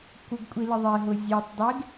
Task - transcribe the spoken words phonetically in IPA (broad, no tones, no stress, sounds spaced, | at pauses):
kʷ ə ɡ kʷʼ i l ə ðˤ e ɦ ʊ zʲ e tˤ dˤ e ɡ